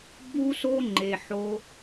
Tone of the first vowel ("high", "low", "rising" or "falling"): high